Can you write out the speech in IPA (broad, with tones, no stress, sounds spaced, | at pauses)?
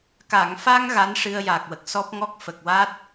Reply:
k a˨˩˨ ŋ f a˧ ŋ ɣ a˧˥ n ʂ ɨ˧ ə̯ j aː˨˩ k̚ w ə˨˩ k̚ s ɔ˦˥ p̚ ŋ ɔ˦˥ k̚ f ə˨˩ k̚ w a˦˥ t̚